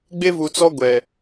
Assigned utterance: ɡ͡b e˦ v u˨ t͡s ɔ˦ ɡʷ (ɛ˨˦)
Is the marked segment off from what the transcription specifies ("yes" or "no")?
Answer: yes